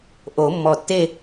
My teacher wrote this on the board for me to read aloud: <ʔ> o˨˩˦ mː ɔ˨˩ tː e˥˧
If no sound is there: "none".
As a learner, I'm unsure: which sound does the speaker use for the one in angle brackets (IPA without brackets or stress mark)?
ʔ